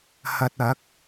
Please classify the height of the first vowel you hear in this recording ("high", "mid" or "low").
low